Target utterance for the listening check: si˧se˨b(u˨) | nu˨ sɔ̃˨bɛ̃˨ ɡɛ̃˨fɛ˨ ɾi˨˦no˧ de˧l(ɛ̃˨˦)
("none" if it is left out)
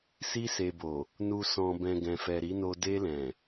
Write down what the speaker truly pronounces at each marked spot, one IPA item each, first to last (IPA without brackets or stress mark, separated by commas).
o˨, ɛ̃˨